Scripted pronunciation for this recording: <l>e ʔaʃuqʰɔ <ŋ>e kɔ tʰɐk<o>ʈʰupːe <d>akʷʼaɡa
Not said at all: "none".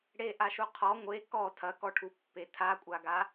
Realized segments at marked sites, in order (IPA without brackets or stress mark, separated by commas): ɽ, ŋʷ, ɔ, tʰ